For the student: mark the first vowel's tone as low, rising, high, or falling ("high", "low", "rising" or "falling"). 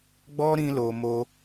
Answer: high